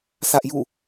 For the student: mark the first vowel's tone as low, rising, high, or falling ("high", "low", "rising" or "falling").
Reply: high